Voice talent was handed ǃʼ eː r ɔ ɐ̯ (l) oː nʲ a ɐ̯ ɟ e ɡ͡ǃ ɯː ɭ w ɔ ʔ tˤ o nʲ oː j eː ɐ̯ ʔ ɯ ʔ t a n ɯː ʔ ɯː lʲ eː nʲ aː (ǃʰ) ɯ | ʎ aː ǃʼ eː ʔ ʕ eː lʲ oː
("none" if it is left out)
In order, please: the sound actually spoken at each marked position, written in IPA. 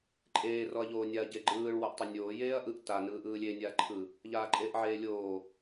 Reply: ʎ, ǃʰ

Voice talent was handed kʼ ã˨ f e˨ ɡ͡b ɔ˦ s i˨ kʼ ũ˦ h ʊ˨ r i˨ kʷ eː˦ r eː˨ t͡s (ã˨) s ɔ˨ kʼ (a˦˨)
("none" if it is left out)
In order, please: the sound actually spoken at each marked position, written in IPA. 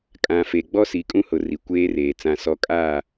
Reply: ã˨, a˦˨

